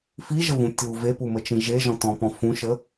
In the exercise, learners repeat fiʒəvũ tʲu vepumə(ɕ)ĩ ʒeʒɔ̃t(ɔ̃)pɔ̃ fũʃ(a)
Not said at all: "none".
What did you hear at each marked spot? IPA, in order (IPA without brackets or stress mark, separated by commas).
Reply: t͡ʃ, ɔ̃, ə